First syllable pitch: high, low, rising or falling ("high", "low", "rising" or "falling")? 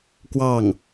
falling